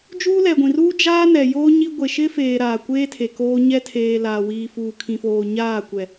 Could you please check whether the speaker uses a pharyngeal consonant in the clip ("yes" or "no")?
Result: no